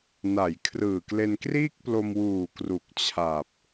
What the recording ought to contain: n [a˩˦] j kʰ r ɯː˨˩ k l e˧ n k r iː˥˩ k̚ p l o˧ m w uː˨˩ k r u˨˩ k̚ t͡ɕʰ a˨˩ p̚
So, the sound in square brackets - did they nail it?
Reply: yes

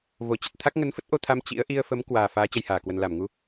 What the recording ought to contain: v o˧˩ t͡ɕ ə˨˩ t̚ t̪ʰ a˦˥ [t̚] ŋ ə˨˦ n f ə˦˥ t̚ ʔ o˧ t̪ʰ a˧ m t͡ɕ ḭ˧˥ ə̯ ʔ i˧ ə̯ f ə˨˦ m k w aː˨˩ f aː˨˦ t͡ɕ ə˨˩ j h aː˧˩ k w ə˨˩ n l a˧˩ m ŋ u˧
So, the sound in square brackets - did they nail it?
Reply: no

